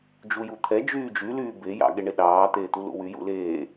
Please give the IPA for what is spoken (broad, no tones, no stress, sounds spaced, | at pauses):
d͡ʒ u j u t̪ʰ ɛ d͡ʒ yː d͡ʒ y l yː b e j ɑ̰ ɠ e ɳ e ɗ ɑː t̪ eː t̪ u l ṵ w y j ṵ l eː